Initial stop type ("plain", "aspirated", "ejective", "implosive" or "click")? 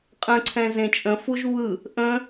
ejective